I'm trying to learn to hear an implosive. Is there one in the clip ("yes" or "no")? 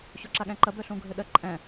yes